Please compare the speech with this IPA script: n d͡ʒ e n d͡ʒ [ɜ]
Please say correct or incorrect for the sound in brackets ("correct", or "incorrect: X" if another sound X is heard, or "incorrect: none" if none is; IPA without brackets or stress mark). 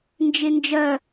correct